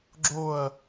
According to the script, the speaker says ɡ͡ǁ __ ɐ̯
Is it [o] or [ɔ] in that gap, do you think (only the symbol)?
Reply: o